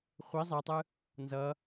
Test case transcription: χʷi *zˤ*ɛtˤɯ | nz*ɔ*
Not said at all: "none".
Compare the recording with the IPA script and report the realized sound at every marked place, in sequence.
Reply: zˤ, ʌ

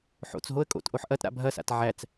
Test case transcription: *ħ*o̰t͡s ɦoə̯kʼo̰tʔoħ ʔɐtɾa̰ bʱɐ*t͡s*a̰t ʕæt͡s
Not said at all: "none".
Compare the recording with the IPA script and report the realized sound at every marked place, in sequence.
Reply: ħ, s

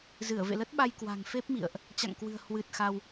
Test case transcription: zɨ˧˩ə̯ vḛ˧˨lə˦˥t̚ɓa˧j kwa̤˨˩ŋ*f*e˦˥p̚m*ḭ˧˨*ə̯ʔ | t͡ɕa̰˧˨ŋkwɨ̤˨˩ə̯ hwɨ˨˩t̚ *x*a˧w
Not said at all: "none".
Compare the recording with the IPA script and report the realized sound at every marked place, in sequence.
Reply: f, ḭ˧˨, x

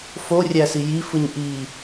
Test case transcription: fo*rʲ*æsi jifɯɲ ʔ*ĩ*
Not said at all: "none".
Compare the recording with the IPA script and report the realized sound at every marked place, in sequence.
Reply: rʲ, i

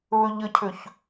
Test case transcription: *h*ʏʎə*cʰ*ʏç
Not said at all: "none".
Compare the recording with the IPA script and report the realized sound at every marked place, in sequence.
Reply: β, cʰ

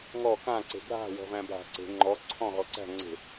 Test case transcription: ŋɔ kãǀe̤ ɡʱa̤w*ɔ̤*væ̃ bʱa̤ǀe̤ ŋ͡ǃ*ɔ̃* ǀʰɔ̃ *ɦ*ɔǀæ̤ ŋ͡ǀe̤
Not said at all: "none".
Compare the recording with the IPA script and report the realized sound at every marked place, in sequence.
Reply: ɔ̤, ɔ, ɦ

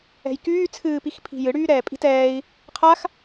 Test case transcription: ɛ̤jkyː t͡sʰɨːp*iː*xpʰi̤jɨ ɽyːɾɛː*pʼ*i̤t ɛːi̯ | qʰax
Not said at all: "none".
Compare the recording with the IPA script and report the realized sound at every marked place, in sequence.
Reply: i, pʼ

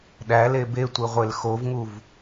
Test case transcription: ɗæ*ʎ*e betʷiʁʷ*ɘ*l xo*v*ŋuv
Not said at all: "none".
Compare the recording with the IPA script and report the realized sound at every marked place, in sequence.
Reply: l, e, v

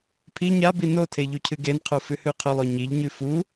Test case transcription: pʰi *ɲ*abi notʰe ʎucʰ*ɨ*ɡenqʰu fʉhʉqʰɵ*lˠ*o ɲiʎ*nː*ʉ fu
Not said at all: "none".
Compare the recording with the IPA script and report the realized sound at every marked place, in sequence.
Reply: ɲ, ɨ, lˠ, ɲ

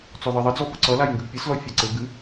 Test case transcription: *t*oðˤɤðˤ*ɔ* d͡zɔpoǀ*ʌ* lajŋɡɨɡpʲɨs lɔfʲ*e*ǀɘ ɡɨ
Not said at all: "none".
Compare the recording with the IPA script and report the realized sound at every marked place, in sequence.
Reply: t͡s, ʌ, ʌ, ɘ

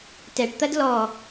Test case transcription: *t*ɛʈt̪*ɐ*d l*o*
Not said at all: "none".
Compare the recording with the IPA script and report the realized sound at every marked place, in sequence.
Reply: t, ɐ, ɔ

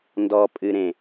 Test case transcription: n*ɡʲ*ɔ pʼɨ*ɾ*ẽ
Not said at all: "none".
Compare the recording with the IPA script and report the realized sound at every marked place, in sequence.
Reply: d, ɾ

